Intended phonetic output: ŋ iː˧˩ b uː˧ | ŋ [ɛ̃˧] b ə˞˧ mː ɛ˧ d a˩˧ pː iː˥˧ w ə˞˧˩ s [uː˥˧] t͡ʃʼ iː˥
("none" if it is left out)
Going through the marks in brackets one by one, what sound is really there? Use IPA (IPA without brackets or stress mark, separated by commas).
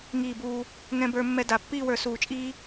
ɛ̃˧, uː˧˩